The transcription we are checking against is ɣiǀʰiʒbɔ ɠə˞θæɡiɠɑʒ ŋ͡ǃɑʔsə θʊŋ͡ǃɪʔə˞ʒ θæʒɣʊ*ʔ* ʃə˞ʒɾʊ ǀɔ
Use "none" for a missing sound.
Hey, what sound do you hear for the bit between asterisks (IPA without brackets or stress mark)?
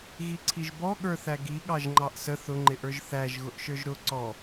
ʔ